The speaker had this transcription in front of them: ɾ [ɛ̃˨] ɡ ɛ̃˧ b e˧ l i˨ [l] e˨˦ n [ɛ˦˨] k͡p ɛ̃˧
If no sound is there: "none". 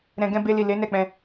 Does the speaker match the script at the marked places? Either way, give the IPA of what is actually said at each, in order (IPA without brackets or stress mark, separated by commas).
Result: ɛ̃˨, l, ɛ˦˨